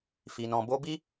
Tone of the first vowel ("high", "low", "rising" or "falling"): low